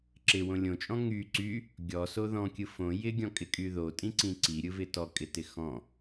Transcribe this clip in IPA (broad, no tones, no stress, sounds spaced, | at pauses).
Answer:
ǁ ɪ w õ lʲ õ t͡ʃʼ ɔ̃ ŋ y ǀ y | ɡʲ ɔ s o ð ɔ̃ kʲ ɯ f õ j ɪ ɡʲ ɔ̃ kʼ ɪ kʼ y ð o tʼ ĩ ǀ ĩ ǀ i ɾʲ ɯ v ɪ t ɔ kʼ ɪ t ɪ x ɔ̃